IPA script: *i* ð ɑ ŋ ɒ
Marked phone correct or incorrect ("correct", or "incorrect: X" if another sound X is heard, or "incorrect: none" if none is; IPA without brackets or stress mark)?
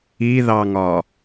correct